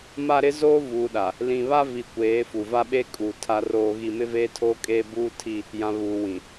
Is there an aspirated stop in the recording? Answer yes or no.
yes